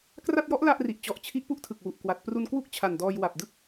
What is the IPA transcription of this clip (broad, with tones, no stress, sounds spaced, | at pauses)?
k r a˥˩ t̚ j ɔ˦˥ ʔ l a˥˩ ʔ r i˨˩ ʔ t͡ɕ ɔ˨˩ ʔ t͡ɕʰ i˦˥ ʔ p u˦˥ ʔ tʰ ɯ˨˩ k̚ w u˨˩ ʔ k w a˨˩ t̚ p r u˧ n k w u˥˩ k̚ t͡ɕʰ a˨˩ n d ɔː˧ j w a˨˩ p̚ d ɯ˥˩ k̚